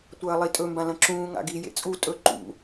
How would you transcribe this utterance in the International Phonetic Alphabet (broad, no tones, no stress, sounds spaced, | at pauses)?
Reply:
tʷ ɐː lˠ i tʼ ɵ m b ã l ɐ̃ ǁ ũː ŋ a̰ ɡ i j ḛ t͡sʼ u tʼ ɵ ǃ ṵ